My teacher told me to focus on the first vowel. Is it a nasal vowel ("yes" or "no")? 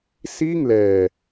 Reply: no